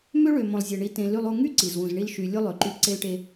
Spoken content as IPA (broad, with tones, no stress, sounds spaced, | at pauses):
m ø˦ ɭ ø˨ m õ˨ lˠ zʲ e˨ ɳ i˨ t ẽ˨ l y˨ lˠ u˨ ŋ y˦ ǀ i˨ z w ũ˨ z ɳ i˦ l ʃ y˨ lʲ u˦ lˠ ø˨ ǃ y˦ ǀ e˦ l ʈ e˦